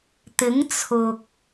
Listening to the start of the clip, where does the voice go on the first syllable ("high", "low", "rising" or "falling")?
rising